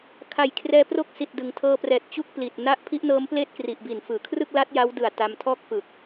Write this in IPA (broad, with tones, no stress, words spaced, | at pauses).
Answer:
kʰa˨˩j kʰrɛː˧pro˥˩k̚si˨˩t̚dɯ˩˦ŋ tʰɤː˧prɛː˨˩t̚ t͡ɕu˥˩k̚pli˨˩t̚na˥˩ʔ pʰi˦˥ʔnɤː˦˥mpleː˥˩t̚kri˨˩ʔ bi˨˩nfɯː˩˦ kʰrɯ˥˩k̚la˦˥t̚ ja˦˥wdɯ˨˩a̯ ta˧mtʰɔː˥˩k̚fɯ˨˩k̚